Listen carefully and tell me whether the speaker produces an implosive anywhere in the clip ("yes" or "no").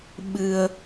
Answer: yes